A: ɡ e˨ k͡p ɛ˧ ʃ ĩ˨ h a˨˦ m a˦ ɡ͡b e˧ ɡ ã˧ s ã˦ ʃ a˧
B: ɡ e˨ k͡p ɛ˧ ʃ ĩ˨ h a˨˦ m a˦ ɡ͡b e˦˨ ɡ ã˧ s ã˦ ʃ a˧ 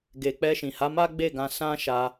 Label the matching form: B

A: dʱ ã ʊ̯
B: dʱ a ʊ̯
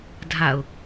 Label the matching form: B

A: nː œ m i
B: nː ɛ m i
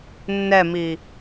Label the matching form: B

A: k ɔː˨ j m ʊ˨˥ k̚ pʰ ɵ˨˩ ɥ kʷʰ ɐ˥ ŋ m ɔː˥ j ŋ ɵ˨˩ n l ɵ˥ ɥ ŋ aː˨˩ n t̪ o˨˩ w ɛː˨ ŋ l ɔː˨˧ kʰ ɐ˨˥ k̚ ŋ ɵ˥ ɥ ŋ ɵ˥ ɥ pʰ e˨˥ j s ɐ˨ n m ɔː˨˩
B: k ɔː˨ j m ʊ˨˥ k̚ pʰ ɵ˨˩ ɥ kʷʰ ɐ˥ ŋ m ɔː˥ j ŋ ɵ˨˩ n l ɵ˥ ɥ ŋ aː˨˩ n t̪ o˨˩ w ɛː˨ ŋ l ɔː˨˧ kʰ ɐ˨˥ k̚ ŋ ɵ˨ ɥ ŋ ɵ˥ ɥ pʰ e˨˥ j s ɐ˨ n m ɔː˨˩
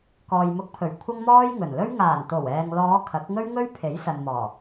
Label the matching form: A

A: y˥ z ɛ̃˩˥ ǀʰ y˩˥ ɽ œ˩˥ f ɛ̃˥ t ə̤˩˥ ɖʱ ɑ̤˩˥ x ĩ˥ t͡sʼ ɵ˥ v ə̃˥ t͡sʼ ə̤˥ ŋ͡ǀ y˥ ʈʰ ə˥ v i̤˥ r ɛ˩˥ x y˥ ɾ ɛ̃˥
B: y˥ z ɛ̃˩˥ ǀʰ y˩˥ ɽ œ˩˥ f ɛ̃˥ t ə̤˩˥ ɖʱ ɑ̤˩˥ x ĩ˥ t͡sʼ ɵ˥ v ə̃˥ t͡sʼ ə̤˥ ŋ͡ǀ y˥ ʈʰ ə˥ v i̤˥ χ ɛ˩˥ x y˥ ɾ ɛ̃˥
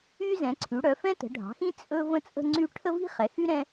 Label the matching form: B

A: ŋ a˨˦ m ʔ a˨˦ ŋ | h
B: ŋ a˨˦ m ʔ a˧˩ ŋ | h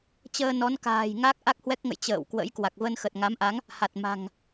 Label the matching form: A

